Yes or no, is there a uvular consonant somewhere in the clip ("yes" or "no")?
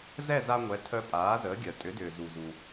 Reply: no